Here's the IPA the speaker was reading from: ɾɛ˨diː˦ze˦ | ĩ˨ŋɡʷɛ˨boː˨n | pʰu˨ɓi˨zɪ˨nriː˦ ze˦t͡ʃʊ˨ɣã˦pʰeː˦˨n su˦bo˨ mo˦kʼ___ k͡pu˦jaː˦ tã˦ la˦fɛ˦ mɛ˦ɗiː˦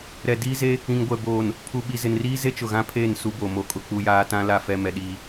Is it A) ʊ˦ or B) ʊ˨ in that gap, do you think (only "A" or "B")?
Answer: A